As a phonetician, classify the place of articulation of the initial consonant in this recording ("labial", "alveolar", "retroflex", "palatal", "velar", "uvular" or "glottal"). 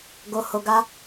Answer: velar